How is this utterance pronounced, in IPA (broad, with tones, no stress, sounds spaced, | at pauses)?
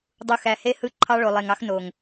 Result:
dˤ u˨ x æ˨ h e˦ h ɯ˦˨ ǃʰ ɑ˦ ɭ o˨ lˠ e˨ ŋ ɑ˦ x n o˨ ŋ